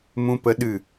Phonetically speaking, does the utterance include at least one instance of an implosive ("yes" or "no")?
yes